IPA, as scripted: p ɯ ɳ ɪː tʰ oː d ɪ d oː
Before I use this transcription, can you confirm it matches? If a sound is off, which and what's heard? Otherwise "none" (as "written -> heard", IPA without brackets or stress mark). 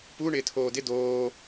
ɯ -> u